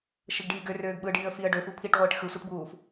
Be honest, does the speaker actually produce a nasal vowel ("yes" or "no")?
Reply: no